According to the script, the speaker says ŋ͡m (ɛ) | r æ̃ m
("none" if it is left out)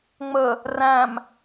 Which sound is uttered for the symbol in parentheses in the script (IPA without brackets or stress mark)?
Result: ə